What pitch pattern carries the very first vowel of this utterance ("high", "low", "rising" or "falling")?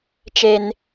high